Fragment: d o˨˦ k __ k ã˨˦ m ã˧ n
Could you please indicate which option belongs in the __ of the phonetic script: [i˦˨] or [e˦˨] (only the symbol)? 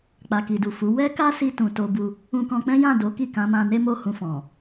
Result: i˦˨